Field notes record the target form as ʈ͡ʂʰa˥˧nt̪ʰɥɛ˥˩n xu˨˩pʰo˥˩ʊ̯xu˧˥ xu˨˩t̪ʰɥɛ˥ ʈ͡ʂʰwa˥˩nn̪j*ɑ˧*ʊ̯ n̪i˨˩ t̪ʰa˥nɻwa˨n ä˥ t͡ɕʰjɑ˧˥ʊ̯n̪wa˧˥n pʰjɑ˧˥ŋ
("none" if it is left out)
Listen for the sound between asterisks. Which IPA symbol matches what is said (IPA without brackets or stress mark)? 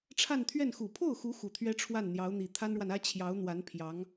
ɑ˧˥